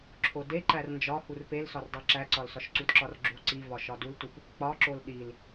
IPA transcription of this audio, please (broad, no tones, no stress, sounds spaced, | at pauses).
ǁʰ o d e ǃ æ r n d͡ʒ ɒ h u r p e l s ɒ r dˤ i ǁ æ ǀ ɒ l s ɒ ʃ ǀ u d ǁ ɒ r ɡ͡ǁ u ǀ i v ɒ ʃ ɒ d u l t u p | k͡p ɒ ǁ o l ɗ i l